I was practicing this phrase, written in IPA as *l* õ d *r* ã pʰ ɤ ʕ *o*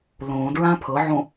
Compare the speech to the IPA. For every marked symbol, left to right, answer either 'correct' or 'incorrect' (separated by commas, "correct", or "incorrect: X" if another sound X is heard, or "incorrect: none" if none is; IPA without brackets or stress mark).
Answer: correct, incorrect: ɹ, incorrect: õ